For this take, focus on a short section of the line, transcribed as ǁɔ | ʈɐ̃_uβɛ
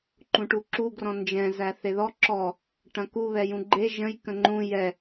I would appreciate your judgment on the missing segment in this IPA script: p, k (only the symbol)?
k